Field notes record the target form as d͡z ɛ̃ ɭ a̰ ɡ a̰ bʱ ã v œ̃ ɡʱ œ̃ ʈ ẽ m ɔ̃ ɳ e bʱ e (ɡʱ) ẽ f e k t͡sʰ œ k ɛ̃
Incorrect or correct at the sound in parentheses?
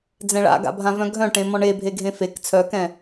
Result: correct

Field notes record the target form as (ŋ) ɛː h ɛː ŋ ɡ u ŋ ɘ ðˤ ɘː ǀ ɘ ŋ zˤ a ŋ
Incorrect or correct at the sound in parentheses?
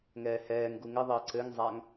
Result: correct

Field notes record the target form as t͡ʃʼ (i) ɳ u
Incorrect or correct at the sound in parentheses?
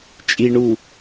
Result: correct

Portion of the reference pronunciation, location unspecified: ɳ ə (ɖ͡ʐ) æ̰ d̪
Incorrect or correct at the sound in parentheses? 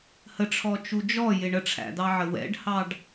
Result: incorrect: ʈ͡ʂʰ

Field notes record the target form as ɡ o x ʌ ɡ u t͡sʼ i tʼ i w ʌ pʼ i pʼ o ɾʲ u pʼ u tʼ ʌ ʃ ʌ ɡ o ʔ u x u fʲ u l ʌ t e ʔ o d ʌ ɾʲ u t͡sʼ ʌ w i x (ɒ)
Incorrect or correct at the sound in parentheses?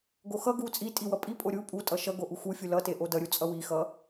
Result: incorrect: ʌ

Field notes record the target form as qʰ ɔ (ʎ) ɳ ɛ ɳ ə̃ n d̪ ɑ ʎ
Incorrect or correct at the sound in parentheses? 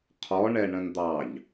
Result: incorrect: none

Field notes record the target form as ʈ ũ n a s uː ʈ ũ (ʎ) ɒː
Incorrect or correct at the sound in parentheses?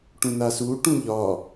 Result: correct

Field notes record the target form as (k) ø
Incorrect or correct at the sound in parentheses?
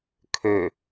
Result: incorrect: kʰ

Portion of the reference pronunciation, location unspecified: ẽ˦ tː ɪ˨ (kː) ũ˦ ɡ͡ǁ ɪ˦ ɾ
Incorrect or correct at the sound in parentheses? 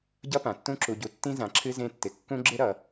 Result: correct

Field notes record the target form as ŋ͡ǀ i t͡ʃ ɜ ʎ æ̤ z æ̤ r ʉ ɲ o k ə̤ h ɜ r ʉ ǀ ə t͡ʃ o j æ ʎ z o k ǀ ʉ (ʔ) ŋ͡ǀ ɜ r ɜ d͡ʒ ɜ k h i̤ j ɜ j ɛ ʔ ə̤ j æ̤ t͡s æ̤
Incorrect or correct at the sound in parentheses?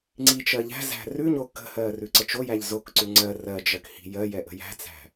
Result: incorrect: none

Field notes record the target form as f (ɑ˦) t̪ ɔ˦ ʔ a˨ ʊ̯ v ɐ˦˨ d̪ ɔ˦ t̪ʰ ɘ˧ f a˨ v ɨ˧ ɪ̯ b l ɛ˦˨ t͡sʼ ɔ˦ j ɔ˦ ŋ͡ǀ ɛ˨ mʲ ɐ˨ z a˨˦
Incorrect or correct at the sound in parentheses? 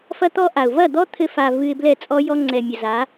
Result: incorrect: ɐ˦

